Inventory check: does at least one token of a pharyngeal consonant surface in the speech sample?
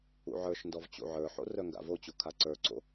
yes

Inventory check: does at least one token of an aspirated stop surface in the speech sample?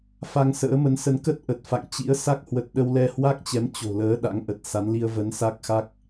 no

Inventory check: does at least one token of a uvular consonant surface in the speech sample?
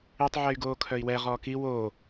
yes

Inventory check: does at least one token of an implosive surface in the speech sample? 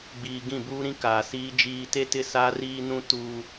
no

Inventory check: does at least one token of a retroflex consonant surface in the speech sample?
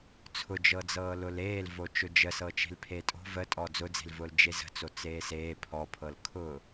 no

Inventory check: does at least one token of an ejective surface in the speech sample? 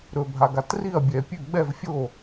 no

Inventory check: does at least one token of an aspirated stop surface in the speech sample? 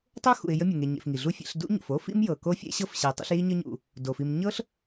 no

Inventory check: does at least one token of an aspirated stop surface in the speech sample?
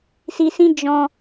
no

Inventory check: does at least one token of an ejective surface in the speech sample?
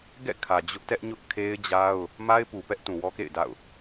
no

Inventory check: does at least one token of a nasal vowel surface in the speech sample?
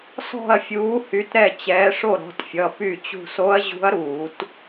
no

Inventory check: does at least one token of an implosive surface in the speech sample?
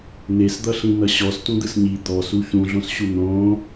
no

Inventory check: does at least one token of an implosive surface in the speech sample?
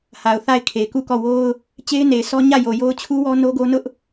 no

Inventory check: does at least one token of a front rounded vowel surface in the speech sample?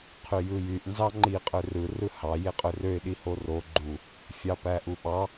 yes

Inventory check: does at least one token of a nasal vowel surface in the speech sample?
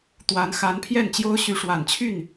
no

